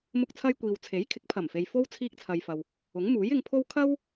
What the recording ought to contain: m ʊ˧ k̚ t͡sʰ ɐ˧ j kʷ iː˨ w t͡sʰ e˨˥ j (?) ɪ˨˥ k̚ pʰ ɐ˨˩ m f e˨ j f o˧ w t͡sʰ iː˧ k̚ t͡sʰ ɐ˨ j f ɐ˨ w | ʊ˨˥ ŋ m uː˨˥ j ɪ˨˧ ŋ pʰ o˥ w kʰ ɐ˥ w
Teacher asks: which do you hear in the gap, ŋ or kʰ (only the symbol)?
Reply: kʰ